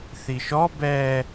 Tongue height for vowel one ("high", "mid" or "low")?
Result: high